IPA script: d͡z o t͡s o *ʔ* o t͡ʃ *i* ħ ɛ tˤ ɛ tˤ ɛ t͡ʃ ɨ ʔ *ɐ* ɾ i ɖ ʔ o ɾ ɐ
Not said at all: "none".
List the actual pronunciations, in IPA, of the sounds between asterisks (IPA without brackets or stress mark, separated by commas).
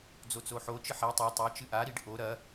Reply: ħ, ɨ, a